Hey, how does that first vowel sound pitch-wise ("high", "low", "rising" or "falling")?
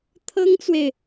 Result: high